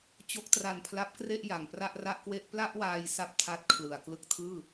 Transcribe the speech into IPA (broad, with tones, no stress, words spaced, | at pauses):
t͡ɕo˦˥k̚tra˧npʰla˦˥p̚kre˥˩ʔ ja˨˩ŋpra˥˩ʔra˥˩ʔkwe˥˩ʔ pla˥˩ʔwaː˧j sa˥˩p̚tʰa˦˥t̚kʰlɯ˨˩a̯ klɯ˦˥k̚tʰɯː˥˩